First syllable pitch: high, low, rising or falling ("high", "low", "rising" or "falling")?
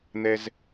high